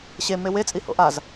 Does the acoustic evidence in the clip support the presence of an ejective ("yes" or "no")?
yes